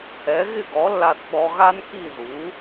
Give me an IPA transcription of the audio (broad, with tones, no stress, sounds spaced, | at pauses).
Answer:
ɛ˩˥ ɣ ɪ˥˩ ɡ ɔ˩˥ lː a˧ θ ɓ ɔ˧ ɣ a˥ n k i˥˩ ð u˩˥